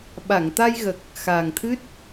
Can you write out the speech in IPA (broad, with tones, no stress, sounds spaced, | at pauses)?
ɓ a˨˩˨ ŋ t̪ a˧ j ɣ ə˨˩ k̚ | x aː˨˩ ŋ t̪ʰ ɨ˦˥ t̚